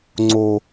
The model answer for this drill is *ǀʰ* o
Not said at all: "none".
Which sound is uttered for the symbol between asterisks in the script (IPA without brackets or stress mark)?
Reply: ŋ͡ǀ